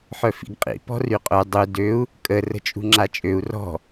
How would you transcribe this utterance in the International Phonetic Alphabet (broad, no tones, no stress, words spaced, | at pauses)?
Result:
ħœfḭɡqʼḭ pɔ̤ryqʼœ dˤu døu̯ | kʼə rə̤t͡ʃʼṳŋ͡ǁat͡ʃʼøu̯ rɔ̤